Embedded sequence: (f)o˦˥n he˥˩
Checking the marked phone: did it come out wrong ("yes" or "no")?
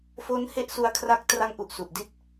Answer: no